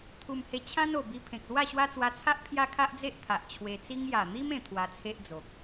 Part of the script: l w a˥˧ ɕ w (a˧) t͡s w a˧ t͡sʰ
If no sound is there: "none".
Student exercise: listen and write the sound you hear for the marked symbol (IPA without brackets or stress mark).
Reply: a˦